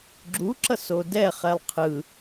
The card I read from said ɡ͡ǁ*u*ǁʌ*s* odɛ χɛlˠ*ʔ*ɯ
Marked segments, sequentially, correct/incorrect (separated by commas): correct, correct, incorrect